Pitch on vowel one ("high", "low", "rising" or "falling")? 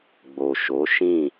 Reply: low